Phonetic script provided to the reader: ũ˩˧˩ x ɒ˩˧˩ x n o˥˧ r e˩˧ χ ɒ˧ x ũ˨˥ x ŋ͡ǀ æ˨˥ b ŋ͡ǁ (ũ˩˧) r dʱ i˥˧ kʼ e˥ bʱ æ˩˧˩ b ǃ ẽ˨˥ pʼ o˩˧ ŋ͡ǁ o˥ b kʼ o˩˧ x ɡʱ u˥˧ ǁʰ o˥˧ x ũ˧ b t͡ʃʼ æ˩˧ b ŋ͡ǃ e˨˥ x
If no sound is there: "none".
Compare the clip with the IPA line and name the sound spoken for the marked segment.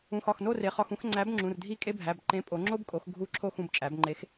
ũ˩˧˩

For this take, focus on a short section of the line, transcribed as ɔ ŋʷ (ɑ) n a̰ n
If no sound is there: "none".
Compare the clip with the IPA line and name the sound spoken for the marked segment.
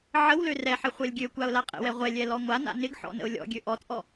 a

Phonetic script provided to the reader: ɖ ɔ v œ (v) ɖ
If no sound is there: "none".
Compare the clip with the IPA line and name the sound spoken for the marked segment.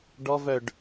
none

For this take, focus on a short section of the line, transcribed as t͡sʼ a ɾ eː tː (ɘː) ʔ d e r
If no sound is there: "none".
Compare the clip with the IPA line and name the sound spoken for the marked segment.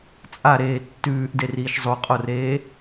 ʉː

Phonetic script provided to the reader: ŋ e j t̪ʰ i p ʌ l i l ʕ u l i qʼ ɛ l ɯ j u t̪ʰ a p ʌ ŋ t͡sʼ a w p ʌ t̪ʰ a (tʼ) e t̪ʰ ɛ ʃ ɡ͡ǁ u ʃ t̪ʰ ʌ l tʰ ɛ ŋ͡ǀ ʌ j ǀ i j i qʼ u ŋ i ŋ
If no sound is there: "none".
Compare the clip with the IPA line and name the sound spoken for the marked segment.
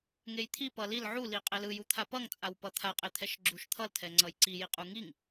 qʼ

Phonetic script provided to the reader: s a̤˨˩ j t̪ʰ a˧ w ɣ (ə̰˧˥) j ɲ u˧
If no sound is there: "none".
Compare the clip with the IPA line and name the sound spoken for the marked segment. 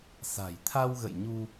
ə̰˧˨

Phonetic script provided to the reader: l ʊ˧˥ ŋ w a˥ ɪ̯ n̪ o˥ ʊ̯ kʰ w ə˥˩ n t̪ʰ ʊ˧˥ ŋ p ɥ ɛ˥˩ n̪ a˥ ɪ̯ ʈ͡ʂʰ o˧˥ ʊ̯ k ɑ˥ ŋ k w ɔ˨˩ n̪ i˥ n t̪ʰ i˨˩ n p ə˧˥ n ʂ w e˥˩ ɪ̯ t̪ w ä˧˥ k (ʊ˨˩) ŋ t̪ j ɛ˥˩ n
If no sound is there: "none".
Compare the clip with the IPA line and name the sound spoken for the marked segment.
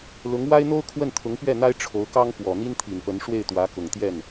ʊ˨˩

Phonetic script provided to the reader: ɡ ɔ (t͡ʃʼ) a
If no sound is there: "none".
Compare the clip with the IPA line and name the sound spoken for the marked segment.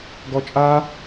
t͡ʃʼ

